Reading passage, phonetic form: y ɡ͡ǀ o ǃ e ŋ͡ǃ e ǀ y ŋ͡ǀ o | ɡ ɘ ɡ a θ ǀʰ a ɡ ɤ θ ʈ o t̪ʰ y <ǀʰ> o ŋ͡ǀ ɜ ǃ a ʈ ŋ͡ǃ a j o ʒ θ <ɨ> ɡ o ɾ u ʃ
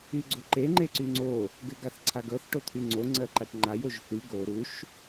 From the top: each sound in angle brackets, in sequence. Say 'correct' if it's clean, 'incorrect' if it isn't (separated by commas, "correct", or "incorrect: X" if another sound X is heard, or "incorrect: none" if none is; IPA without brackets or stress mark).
incorrect: ŋ͡ǀ, incorrect: y